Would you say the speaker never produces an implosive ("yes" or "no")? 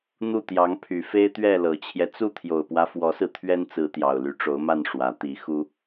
yes